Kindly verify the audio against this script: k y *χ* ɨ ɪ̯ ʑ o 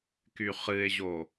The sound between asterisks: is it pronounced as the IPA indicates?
yes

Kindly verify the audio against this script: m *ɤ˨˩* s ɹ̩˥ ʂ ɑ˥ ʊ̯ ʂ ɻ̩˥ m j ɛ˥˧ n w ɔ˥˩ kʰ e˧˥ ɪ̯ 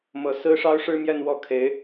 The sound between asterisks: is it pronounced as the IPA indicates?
yes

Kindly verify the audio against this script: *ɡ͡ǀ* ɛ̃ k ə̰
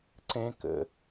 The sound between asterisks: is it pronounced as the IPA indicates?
no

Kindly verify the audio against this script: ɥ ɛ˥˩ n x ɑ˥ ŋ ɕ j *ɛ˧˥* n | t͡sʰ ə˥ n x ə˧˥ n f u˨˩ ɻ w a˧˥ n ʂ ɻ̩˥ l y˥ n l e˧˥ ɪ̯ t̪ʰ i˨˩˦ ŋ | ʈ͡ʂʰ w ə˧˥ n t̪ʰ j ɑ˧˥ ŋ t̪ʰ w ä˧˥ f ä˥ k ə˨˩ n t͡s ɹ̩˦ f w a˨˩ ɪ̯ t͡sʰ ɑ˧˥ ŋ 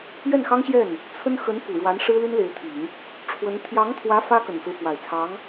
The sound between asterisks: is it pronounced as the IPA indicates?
no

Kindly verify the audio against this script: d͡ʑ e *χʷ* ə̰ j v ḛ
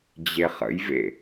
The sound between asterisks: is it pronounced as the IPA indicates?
no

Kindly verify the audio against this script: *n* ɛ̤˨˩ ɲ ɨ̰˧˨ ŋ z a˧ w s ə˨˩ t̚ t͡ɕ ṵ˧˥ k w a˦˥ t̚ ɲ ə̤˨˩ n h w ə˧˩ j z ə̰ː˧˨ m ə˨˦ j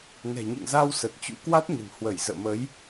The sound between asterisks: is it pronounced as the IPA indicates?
yes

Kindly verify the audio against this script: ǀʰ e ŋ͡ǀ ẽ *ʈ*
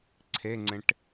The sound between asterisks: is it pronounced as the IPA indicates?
yes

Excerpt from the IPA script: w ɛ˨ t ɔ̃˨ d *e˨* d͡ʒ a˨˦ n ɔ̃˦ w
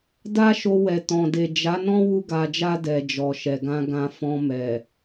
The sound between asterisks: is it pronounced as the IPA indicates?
yes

